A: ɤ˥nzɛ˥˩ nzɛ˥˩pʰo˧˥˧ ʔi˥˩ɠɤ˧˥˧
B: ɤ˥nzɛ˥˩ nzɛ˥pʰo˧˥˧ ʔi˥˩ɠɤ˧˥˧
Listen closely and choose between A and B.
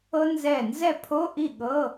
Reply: A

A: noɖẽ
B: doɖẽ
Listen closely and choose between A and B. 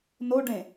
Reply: A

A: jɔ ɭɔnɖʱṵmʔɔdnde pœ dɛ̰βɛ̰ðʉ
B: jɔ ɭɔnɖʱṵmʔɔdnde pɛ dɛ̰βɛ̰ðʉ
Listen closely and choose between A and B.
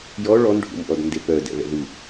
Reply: A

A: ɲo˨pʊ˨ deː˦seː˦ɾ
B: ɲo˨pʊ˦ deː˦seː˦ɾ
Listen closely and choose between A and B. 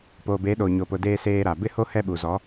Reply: A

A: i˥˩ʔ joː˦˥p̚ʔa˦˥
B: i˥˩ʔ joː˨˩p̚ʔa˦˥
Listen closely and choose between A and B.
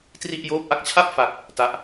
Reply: A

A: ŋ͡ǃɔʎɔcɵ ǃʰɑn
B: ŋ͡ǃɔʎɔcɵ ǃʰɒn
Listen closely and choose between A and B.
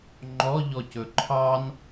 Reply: A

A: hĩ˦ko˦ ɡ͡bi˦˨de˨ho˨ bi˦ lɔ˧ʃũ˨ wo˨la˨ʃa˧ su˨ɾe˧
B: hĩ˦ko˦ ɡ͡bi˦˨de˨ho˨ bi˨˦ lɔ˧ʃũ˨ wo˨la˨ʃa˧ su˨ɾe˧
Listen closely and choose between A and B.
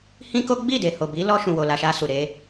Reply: B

